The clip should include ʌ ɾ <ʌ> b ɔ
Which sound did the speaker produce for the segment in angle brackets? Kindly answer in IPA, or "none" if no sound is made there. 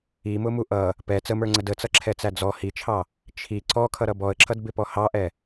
ʌ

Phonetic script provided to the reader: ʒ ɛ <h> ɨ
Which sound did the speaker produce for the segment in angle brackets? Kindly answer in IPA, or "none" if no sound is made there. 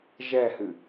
h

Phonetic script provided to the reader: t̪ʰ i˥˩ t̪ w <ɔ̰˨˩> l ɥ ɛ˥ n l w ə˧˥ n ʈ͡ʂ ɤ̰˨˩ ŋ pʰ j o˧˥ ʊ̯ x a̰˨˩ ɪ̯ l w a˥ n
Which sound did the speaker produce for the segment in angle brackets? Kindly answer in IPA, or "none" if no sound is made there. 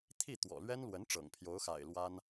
ɔ̰˨˩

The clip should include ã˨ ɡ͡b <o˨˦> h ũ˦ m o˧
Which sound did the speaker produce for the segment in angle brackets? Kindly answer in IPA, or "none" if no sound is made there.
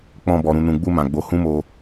o˨˦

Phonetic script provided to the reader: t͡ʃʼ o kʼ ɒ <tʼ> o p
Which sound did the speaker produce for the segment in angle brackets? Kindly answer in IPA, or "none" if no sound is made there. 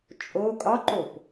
ǃ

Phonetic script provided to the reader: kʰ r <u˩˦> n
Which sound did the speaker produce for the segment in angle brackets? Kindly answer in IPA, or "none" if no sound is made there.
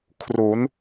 u˩˦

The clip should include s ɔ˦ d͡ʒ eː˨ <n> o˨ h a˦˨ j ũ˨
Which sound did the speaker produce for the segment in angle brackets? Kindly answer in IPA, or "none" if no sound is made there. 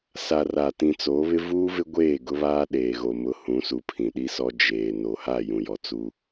n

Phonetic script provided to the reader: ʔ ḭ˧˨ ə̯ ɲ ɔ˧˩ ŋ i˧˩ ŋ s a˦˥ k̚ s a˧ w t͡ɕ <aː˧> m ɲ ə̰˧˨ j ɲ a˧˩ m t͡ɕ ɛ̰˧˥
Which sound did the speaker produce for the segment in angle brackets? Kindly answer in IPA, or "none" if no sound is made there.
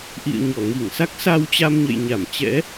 a˧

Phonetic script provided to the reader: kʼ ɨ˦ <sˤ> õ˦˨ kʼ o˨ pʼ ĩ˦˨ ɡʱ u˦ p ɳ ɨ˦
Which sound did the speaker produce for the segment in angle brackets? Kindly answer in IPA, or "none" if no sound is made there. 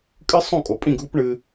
sˤ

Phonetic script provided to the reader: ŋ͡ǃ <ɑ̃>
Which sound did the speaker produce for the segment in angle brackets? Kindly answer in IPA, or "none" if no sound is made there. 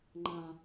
ã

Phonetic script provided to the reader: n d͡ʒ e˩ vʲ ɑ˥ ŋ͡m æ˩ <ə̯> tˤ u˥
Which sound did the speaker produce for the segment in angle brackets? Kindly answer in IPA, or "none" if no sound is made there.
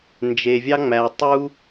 ə̯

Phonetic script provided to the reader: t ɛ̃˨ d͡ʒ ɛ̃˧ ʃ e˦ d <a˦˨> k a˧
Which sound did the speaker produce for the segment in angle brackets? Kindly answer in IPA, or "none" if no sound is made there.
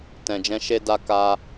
a˦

